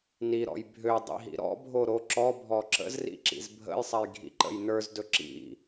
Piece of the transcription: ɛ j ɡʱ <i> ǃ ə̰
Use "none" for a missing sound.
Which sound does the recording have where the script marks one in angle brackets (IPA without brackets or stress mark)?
ḭ